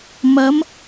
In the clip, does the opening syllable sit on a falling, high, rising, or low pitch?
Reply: rising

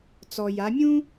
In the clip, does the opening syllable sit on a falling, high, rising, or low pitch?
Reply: low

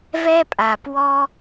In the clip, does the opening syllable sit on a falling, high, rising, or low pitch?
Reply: high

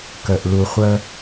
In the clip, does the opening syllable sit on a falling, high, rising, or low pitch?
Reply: low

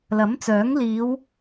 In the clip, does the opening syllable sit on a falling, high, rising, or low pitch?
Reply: rising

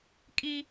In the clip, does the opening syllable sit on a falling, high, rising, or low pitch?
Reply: high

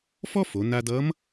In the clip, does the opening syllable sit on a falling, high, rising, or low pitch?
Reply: high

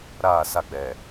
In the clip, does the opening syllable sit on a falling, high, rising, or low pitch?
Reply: falling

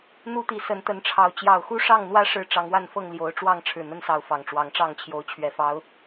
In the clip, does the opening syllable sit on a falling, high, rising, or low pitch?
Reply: high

